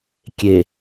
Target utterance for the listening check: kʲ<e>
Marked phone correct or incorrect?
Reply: correct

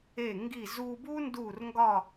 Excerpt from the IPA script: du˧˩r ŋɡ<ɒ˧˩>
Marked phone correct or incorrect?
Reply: correct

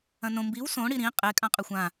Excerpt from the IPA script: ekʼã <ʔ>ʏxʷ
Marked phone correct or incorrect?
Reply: incorrect: qʼ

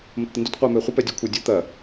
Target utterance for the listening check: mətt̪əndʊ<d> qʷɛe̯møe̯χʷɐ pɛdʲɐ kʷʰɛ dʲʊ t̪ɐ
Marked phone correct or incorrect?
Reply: incorrect: t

